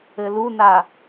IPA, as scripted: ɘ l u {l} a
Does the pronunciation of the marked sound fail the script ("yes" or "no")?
yes